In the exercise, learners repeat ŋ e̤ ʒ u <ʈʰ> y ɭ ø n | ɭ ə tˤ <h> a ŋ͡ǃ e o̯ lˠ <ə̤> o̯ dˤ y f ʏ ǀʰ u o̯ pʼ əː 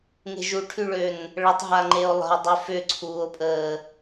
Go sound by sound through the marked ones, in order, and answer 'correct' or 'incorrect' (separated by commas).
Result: correct, incorrect, correct